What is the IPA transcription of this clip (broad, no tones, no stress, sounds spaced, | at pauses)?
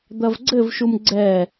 d̪ ɐ v ɡ͡ǀ ɘ v ʃ u m ɡ͡ǀ ɛ